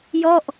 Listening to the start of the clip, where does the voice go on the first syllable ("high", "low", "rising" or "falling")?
falling